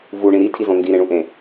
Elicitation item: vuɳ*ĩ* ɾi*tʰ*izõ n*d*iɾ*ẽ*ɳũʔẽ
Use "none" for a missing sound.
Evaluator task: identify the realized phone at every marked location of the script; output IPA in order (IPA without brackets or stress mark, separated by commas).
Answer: ĩ, tʰ, d, ẽ